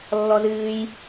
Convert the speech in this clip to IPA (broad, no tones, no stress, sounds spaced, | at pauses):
lː ɔ z ɨː j